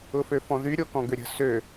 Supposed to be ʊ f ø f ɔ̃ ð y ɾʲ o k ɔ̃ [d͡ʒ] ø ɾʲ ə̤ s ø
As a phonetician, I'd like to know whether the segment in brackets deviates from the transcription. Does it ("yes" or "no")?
yes